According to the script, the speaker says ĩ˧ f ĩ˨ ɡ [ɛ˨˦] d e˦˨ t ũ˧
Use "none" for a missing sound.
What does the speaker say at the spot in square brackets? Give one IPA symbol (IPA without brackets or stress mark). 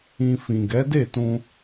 ɛ˨˦